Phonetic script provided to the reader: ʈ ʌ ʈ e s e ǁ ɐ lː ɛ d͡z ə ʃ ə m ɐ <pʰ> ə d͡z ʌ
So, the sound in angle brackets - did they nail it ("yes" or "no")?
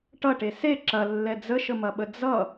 no